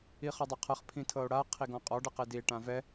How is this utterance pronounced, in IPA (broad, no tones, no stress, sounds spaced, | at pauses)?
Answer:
i χ ɔ dˤ a qʰ ɤ χ pʰ ĩ tʰ ɤ o̯ ɽ a qʰ i ɡ ɔ̃ qʼ ɔ ɖ ɯ q e d i e̯ ʈ ã v ɛ